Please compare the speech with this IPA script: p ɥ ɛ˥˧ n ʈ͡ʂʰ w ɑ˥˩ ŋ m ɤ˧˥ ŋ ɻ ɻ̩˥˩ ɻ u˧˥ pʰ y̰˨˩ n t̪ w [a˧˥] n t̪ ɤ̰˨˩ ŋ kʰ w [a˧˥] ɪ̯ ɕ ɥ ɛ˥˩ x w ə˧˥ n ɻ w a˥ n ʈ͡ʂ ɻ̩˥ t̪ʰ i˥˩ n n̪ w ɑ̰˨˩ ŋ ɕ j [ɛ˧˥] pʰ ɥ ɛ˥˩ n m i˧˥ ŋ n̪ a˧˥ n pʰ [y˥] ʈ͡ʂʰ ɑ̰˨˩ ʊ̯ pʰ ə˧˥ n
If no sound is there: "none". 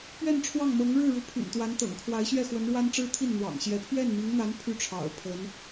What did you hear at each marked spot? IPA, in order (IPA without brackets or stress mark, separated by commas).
a˧˥, a˧˥, ɛ˧˥, y˥